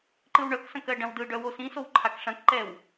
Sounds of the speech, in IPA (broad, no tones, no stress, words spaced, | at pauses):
ǃɯwɳœksɐ̃k ɜɖɐ̃wdɯɖœ wosĩsow ǃʰakʂɐ̃kǃɛw